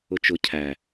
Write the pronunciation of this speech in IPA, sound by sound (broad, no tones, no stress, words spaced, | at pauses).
ʊt͡ʃʊ cʰæ